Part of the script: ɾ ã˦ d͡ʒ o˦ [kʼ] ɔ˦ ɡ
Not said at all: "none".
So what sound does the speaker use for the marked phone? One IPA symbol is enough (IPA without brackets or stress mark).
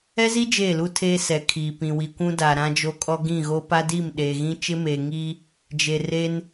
kʼ